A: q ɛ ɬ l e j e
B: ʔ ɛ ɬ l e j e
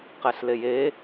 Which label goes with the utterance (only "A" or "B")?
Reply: A